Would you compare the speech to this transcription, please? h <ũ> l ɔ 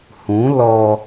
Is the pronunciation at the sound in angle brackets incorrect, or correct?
correct